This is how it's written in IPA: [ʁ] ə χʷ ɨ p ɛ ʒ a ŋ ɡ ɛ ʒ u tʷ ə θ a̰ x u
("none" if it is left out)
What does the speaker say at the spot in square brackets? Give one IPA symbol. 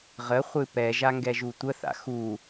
ʁ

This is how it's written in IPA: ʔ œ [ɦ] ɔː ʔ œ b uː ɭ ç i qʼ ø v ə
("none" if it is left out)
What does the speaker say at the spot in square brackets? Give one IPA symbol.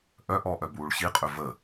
ʔ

